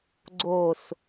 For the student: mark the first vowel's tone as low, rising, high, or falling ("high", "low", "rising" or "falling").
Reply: low